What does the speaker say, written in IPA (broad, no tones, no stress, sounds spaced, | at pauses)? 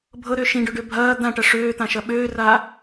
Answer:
bʱ ɤ ɾ ø ʃ ĩ ɖ ø ɖ ø bʱ ɐː d̪ ã ʈ ɐ ʂ øː t̪ ã ʃ ɐ ɓ øː r a